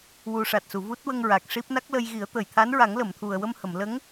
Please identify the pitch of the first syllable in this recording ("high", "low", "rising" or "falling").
low